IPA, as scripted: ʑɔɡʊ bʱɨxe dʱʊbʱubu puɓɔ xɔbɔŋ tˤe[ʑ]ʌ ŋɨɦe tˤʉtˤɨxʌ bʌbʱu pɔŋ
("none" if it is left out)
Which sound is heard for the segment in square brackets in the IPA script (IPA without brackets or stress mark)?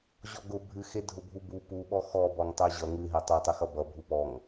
ʑ